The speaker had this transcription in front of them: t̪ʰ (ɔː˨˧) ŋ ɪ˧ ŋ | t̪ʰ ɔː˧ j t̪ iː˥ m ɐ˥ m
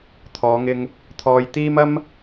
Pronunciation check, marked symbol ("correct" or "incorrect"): correct